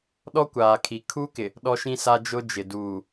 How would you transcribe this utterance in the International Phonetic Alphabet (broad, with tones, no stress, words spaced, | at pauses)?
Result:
ɗɔ˦kʷaː˨kʰi˨ kʰu˦kɪ˨ | ɗɔ˦ʃĩ˦sa˦ d͡ʒʊ˦d͡ʒɪ˨ duː˨